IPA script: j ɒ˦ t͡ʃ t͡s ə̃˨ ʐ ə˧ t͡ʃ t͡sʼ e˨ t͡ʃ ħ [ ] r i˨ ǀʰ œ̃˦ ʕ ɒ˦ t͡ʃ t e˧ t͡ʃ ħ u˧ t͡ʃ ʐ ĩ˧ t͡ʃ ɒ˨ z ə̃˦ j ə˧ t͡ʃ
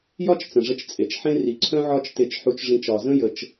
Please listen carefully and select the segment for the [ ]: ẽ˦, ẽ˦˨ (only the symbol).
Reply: ẽ˦